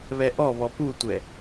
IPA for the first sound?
β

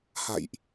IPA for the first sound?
h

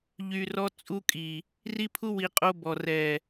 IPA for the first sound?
ʎ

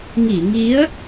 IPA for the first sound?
ŋ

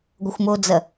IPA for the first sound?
ɡʷ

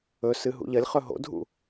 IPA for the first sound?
ɵ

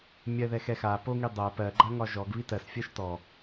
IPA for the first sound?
mʲ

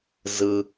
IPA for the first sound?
z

